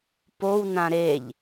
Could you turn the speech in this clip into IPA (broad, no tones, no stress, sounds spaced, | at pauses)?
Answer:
p o w n ã ɾ e ʎ